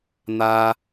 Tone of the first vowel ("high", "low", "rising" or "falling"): high